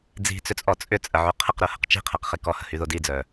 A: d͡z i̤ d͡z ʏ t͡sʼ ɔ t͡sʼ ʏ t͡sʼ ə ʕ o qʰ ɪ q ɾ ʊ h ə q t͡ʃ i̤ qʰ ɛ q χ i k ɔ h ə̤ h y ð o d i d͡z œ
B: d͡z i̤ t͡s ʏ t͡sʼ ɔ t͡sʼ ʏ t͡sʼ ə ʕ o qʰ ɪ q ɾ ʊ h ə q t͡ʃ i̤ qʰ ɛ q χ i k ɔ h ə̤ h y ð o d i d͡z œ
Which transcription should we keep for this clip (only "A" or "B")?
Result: B